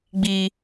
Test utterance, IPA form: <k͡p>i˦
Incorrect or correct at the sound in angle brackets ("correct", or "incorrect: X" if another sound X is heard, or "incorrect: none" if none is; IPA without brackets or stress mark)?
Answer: incorrect: ɡ͡b